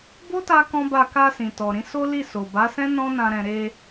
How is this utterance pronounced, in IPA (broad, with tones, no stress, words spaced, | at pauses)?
bo˦ta˧ kɔ̃˦ba˦˨ ka˧sĩ˨tɔ˨ɾĩ˨˦ so˦li˦˨ so˨ba˨˦sɛ̃˦ nɔ̃˦nã˧ɾɛ̃˧ ɾe˧